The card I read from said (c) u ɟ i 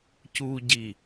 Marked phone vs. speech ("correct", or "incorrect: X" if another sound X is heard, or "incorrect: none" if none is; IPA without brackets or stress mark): correct